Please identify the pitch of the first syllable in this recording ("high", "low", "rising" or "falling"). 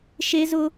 high